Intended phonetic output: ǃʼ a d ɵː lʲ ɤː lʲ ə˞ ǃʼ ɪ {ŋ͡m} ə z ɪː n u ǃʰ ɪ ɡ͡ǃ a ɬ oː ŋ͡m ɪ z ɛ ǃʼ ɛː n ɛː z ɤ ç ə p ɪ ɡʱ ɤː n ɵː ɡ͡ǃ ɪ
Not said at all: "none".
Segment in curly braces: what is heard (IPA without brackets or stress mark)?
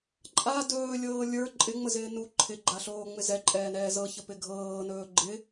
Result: ŋ͡m